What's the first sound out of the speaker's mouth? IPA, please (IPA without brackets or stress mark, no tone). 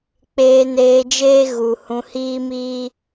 k͡p